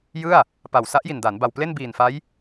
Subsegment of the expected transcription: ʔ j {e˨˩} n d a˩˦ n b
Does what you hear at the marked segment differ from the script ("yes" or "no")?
yes